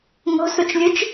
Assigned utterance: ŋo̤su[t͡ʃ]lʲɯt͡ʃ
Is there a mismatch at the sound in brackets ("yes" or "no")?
no